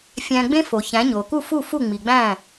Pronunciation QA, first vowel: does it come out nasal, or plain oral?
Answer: nasal